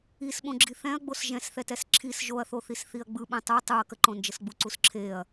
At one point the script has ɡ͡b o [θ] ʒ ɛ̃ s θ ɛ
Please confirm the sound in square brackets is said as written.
no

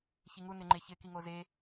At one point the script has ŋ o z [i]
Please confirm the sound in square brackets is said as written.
no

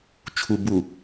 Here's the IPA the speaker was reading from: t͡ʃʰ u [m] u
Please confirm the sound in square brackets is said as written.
no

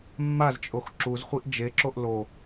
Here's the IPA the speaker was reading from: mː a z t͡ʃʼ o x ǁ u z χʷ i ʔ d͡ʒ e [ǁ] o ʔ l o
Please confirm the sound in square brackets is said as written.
yes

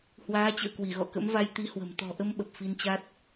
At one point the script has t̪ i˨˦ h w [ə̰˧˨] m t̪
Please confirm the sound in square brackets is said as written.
no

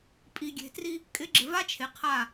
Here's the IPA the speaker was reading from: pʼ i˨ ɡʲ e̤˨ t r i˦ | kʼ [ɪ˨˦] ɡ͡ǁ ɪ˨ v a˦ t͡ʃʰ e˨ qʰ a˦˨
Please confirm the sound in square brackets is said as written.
yes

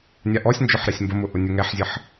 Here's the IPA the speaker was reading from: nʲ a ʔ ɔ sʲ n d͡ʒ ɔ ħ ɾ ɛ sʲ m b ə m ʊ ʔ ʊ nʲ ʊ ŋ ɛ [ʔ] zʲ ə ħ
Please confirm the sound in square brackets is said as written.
no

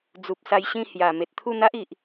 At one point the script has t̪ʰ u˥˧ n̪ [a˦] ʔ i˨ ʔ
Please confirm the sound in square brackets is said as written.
yes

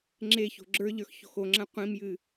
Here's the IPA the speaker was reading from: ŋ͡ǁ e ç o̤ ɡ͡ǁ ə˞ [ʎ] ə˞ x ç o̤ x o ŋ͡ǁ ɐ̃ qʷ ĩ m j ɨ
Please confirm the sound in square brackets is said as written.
yes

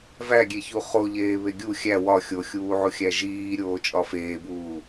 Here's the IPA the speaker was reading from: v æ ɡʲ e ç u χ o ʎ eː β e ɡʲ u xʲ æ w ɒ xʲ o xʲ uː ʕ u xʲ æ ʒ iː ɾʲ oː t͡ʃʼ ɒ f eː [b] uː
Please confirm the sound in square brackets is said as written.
yes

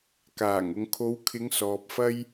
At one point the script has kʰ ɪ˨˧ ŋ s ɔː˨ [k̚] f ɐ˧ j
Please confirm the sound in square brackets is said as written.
no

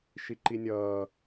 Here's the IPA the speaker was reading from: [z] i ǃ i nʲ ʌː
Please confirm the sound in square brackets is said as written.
no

